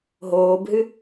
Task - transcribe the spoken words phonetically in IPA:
ɦoːbɦɨ

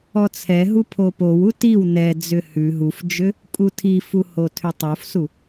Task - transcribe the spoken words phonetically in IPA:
ɔt͡sʰɛɦu pʰopowu tiw nɛd͡zʏ hʉ ɦufd͡ʒʏ | kʼutʰifu hotʰʏtˤofsu

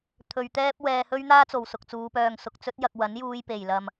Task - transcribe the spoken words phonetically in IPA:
t̪ʰɵ˧ɥ t̪ɛː˥p̚ wɛː˧hɵ˥ɥn̪aː˥t͡so˨w sʊ˨k̚t͡suː˨˧ pœː˧ŋsʊ˧k̚t͡sɵ˥t̚jɐ˧k̚ wɐ˨˥njuː˧jpe˨˩jlɐ˨m

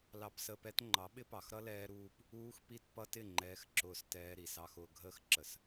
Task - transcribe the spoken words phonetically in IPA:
lɑ˧psəː˧pɛ˦t ŋ͡ǃɑ˨˦ɓɪ˦pɑ˨x ɾʌ˦lɛː˧ɾuː˧p | uː˧x pi˧t pʌ˧tɪ˦˨ ŋ͡ǃɛː˧xǁʊː˧stɛː˧ ɾi˨sɑ˧xʊː˧ɡʱəː˦x ǁə˨s

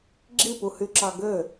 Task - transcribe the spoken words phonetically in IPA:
ɡ͡ǁipuhyǁɑ ɡø

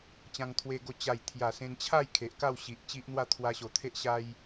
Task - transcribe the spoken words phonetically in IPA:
t͡ɕã˧ŋt̪ʰwe˧ ɡo˧ t͡ɕa˨˩jt̪ʰja˨˩ sẽ˧nt͡ɕʰa˥˧j kʰe˨ʔka˥˧wɕi˨ʔ t͡ɕi˦ʔn̪wa˥˧ t̪ʰwa˧ɕo˨˩t̪ʰe˦ʔ ɕa˦j

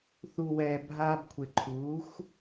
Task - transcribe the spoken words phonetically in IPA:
θu˨wɛː˨ bʱaː˧bkʷʰe˨ǃʰuː˨˦xʷ

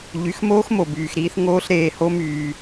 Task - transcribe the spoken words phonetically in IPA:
ʎy˨˦xmoː˦xmo˨byː˨x ɾiː˦θ ŋoː˦ɬ ɾeː˨ho˦ myː˦

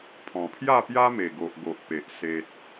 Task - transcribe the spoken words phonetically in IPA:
pʰɔ̃˨˩pʰja˥˧pja˦me˨˩ ɡo˨ʔɡo˨ʔpe˨ʔ se˨t̚

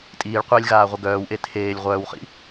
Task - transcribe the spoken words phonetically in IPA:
tʼiːɭqʷeːlʲɣaːʁʷə ɡœːwʔe tʰeːlʲ ʁʷœːwχḭ

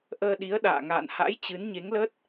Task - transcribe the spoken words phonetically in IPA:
ʔəː˧ɗi˨˦ə̯ ɗa̰ː˧˨ŋa̰ː˧˨nha̰˧˥j t͡ɕɨ˨˦nɲe˨˦ŋlə˦˥t̚

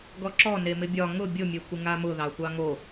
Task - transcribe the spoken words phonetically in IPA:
ɡɔǁɔ nemɪbʲɒ ŋʊ bʲʊ mʲekʷɪŋamʊ ðɑxʷɑŋo

